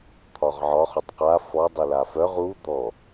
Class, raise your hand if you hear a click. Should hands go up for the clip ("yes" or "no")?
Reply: no